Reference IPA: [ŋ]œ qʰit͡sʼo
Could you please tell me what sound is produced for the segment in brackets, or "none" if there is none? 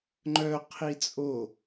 ŋ͡ǃ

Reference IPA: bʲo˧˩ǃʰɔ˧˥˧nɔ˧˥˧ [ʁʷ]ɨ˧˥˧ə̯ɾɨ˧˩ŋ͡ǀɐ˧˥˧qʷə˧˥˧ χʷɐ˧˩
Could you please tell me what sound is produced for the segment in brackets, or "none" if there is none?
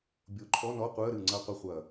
qʷ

